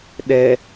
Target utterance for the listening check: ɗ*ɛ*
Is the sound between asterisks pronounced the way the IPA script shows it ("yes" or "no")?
yes